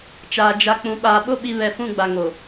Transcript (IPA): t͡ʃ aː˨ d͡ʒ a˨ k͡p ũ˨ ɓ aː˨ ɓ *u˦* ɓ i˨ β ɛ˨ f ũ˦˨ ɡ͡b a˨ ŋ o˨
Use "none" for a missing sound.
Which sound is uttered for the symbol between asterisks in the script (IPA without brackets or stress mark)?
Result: o˦